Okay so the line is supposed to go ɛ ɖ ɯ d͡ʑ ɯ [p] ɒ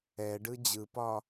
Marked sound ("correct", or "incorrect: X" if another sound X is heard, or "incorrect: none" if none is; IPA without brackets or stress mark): correct